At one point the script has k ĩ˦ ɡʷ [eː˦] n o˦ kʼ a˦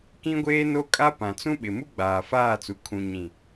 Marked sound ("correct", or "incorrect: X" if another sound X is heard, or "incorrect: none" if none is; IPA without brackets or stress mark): correct